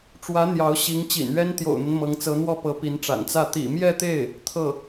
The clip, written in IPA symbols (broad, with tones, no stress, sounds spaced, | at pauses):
ʈ͡ʂ w ä˧˥ n̪ j ɑ˧˥ ʊ̯ ɕ i˧˥ ŋ t͡ɕ ḭ˨˩ n ɥ ɛ˥ n t̪ j o̰˨˩ ʊ̯ n̪ ə˦ n m ɤ˧˥ ŋ t͡s ɤ˧˥ n̪ w ɔ˥˩ p ɤ˧˥ p i˧˥ n ʈ͡ʂ a̰˨˩ n t͡s ä˥˩ t̪ ḭ˨˩ m j ɛ˥˧ t̪ e˥˩ ɪ̯ | t̪ʰ ɤ˥˩